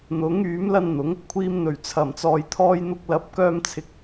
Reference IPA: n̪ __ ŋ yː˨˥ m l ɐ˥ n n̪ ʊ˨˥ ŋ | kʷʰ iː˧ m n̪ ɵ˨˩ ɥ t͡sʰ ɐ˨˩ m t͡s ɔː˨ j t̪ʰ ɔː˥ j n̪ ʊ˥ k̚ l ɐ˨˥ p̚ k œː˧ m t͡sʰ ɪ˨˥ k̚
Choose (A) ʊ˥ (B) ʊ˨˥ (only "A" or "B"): B